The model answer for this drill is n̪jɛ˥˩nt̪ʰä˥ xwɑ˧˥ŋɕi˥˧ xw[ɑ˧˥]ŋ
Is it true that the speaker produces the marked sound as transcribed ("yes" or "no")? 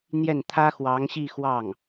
no